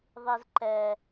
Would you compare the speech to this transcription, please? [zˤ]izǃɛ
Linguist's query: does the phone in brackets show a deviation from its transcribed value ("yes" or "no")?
yes